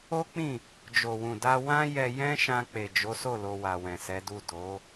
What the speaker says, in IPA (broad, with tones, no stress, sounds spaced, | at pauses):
o˦ k͡p ĩ˦˨ | d͡ʒ o˨ w ũ˨ d a˧ w ã˦ j ɛ˧ j ɛ̃˦ ʃ ã˧ k͡p e˨ d͡ʒ o˨˦ s o˦˨ l o˧ w a˨ w ɛ̃˨ s ɛ˨˦ d u˦˨ d o˨˦